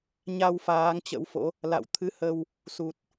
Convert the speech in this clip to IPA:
ɲa˧w faː˨˦ŋt͡ɕə̰˧˥wfo̰˧˥ | la̰˧˨w t̪ʰɨ˨˦hə˧w | su˨˩t̚

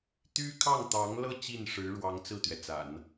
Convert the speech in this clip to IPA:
t̪y˥kʰɑ˥˩ŋt̪ɑ˧˥ŋlɤ˥˧ t͡ɕi˥˩nʂɻ̩˧˥ɻwɑ˧˥ŋ t͡sɹ̩˥˩t̪ɥɛ˩t͡sa̰˨˩˦n

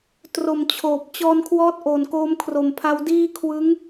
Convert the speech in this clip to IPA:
tro˨˩m t͡ɕʰoː˨˩p̚ t͡ɕɔː˧nkʰwɔː˦˥t̚ ʔo˨˩nkoː˦˥m kʰro˨˩mpʰa˧wdiː˥˩ kʰwɯ˦˥ŋ

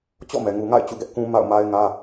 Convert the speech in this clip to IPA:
t͡ɕɔ̰˦˨mɛ˨ ŋu˨ŋa̰˦˨ɪ̯ t͡ɕṵ˦˨ɡɛ˦ʔ kũ˦ ma̰˦˨ʊ̯ma˦ɪ̯ŋä˦

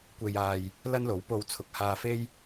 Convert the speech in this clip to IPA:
kʷe˧jaː˧j | lɐ˥nlo˨˥wpo˧w t͡sʰʊ˨k̚haː˧fe˥j

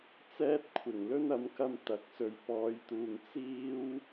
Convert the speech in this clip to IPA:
t͡sɛː˥t̚kʷʰɪ˨˩ŋ lɵ˥n ɐ˨˥mkɐ˧m t̪ɐ˨˥k̚sɵ˨ɥpɔː˨˧jt̪uː˨ŋ t͡siː˥w

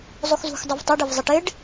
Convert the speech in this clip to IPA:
zˤuxzṳxdˤuv tˤɪɖɪv zˤɪʈɪɖ

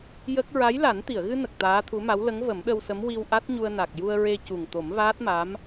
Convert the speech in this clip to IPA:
jə˦˥k̚ ɹa˧˥jla˨˩˦n t̪i˨˩˨ə̯ɣɨ˧nə˨˩k̚ t̪aː˧˥t̪ʰu˧˥ma˧˥w lə˧˥ŋvə˨˩˦mɗə˧wsə˧˥m wi˧wʔa˦˥t̚ɲu˧ə̯na˨˩k̚ ju˧ə̯ɹe˧cu˨˩ŋ t̪o˨˩˦mvaː˦˥t̚ma˧˥m

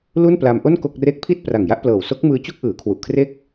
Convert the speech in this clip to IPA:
lu˥˩npla˧mʔo˥˩n ko˥˩k̚re˥˩k̚ pʰi˥˩t̚pra˨˩ŋja˥˩ʔplɤː˨˩w so˦˥k̚mɯː˧ t͡ɕu˥˩k̚ʔɯː˩˦kʰwu˨˩ʔkʰre˥˩k̚

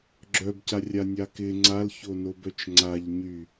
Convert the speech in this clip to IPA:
ɡ͡ǁœbcarʲanʲa kɪ ŋ͡ǀalçonobœt͡ʃ ŋ͡ǀaʎɲy

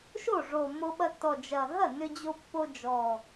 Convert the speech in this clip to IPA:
ʃo˥˩ʐo˨˩mːo˧ ɓɐ˧tːɔ˨˩ d͡ʒɐ˨˩ɦɐ˥˩ nʏ˧d͡ʑo˧pːo˧ d͡ʒɔ˨˩

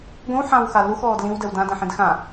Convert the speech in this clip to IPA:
ɡʷĩwħãwxa luxɔːd lĩwdɛw dãdɛ̃ħĩd xã

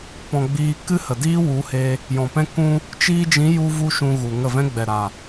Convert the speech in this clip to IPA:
pɔ̃˨ ɡ͡biː˧ kɨ˦hə˨diː˦ wu˨˦he˧ | jɔ̃˨pɛ̃˧kũ˧ | t͡ʃiː˧d͡ʒĩ˨˦ ju˦vu˦ʃũ˧ɣu˨ ŋə˦˨vɛ̃˦ ɡ͡bɛ˨ɾa˨

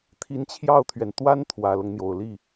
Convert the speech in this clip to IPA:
t̪ʰi˧˥nt͡ɕʰjɑ˥˩ʊ̯t̪ʰɥɛ˩n t̪wa˥n t̪ʰwä˨˩lɤ˦ŋn̪jo˨˩ʊ̯ li˥˩

